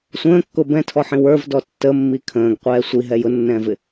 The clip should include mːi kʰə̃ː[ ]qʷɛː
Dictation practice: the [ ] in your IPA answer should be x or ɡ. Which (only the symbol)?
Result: ɡ